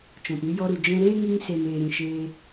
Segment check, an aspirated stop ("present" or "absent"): absent